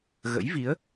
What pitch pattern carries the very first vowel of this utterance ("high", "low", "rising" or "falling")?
rising